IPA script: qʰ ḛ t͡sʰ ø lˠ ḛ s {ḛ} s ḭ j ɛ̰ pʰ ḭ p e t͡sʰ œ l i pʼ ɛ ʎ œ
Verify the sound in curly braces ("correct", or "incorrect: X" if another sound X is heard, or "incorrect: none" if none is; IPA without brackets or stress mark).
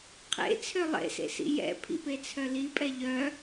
correct